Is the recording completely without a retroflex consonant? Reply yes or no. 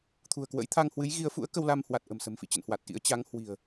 yes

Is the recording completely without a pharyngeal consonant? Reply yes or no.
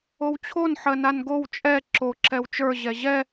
no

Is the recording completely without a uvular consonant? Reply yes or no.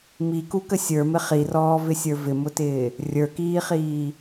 no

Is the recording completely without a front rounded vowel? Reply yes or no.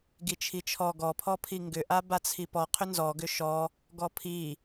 no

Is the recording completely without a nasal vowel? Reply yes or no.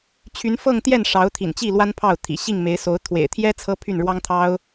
yes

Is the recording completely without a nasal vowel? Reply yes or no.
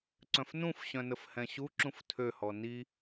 no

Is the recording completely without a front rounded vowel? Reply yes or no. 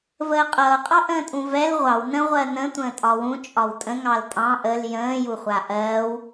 yes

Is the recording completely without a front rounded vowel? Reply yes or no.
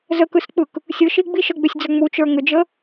no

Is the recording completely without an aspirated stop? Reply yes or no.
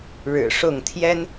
no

